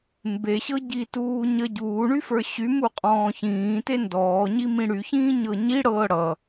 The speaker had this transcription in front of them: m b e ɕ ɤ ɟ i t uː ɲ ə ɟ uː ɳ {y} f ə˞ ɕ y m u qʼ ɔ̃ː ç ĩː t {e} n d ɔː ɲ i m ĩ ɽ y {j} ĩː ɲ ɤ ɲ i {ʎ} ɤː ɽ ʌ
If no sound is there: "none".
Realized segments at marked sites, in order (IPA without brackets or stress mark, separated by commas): y, e, ç, ɽ